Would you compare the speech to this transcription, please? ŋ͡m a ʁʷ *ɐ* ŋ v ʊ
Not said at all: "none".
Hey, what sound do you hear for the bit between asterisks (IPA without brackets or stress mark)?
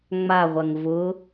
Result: ɐ